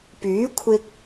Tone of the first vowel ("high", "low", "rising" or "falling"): rising